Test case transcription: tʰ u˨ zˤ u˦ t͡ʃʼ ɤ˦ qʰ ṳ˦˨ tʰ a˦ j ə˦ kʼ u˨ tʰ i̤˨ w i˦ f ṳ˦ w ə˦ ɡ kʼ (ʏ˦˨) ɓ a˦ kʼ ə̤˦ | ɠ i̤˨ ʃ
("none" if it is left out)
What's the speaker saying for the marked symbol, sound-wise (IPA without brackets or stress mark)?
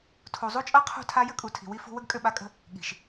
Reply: ʏ˦˨